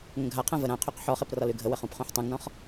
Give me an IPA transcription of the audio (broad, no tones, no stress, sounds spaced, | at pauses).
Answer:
ŋ ə̃ ɡʱ a qʰ ã v ə ɾ ã qʰ y q ħ ɔ χ e p r ɒ l y ɡʱ ə w ə χ ũ p χ ũ ħ tˤ ũ ŋ n ɔ̃ χ